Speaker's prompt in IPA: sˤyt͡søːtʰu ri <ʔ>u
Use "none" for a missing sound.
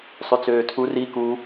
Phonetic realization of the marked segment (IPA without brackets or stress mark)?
k